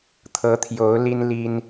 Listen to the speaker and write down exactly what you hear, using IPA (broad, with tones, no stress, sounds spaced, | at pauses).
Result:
t̪ʰ ɤ˨˦ t̪ʰ j o˨˦ ʊ̯ l i˦ n l i˦ n